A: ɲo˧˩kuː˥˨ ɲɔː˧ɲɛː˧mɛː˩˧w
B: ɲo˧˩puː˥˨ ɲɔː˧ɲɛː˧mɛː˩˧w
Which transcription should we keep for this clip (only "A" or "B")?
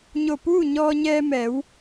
B